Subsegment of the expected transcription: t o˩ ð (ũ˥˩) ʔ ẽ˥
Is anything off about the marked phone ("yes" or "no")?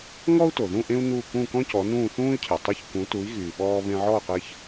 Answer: no